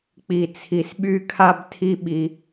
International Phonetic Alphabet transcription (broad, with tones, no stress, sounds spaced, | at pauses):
k͡p i˨ t͡sʰ i˨ s ɓ y˦ kʰ a˦ b tʰ i˦ ɓ i˧